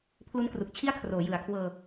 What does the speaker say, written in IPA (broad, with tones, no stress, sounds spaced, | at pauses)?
pʰ l u˦˥ n k r u˨˩ k̚ t͡ɕʰ i˥˩ a̯ kʰ r oː˩˦ j ɯ˩˦ a̯ kʰ w ɤː˧